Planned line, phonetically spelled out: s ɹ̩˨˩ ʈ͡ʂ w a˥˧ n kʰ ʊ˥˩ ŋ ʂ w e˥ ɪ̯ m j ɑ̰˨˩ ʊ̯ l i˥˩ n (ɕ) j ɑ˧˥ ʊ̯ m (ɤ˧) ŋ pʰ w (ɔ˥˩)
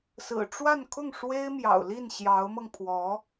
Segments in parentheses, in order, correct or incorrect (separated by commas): correct, correct, incorrect